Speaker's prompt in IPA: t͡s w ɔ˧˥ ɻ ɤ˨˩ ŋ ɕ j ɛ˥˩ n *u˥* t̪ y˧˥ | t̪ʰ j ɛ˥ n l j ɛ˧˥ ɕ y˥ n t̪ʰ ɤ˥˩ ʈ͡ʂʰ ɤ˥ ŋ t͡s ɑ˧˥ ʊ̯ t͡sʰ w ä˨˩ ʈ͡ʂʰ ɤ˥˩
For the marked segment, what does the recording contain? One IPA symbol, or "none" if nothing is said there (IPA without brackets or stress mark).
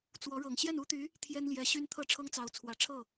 u˥